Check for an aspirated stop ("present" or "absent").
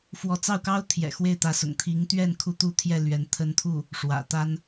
present